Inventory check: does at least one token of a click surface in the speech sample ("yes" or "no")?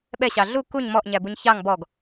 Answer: no